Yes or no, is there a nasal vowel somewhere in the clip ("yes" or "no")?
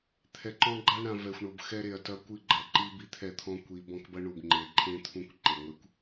yes